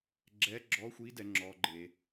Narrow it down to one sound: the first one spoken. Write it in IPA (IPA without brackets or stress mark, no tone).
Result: ɡ͡ǁ